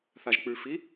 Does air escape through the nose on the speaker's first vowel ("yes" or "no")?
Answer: no